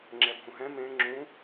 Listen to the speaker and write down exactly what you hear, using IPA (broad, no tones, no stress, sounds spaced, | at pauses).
ŋ͡ǁ ɛ bʱ ũ ɦ ɛ̃ m ẽ ŋ͡ǁ ũ